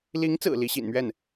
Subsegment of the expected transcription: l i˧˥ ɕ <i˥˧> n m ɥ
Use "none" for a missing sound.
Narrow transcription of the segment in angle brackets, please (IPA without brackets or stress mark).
ḭ˨˩